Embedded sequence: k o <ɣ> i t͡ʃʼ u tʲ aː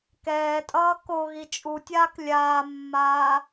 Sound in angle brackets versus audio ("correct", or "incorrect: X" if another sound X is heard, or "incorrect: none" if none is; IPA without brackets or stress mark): correct